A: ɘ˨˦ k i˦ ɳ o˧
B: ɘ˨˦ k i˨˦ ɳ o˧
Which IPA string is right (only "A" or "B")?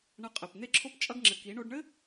B